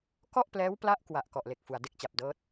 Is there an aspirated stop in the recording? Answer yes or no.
no